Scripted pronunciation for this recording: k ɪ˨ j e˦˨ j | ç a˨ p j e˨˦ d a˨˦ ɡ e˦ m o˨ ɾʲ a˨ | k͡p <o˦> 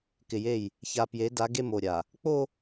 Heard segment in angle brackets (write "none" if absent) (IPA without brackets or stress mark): o˦